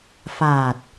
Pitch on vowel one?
low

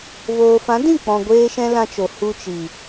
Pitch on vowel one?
low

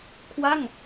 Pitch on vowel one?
falling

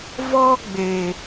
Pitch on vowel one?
high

